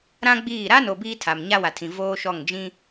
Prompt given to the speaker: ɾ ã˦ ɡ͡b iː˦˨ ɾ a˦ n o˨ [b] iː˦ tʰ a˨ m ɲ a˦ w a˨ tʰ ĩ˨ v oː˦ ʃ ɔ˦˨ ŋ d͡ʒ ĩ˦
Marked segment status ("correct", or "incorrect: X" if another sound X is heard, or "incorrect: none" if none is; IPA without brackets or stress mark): correct